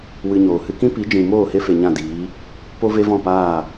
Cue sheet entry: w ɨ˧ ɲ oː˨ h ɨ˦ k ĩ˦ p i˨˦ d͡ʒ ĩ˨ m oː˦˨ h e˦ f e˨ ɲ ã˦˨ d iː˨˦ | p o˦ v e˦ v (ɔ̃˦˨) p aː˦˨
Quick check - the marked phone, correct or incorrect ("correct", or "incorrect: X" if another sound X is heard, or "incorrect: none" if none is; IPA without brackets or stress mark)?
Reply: correct